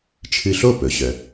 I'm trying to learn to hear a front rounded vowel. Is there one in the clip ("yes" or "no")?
yes